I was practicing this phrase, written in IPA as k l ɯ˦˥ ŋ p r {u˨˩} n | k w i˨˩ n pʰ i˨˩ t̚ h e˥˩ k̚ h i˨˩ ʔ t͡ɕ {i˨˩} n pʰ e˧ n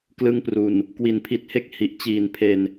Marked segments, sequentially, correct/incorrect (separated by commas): correct, incorrect